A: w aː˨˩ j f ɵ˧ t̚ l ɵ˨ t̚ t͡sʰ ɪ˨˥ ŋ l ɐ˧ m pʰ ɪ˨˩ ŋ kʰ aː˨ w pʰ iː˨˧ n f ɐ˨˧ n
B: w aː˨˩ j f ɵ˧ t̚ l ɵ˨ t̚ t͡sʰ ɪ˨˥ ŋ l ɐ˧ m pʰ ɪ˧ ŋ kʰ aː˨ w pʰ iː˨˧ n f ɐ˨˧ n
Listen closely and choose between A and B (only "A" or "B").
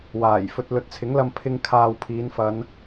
B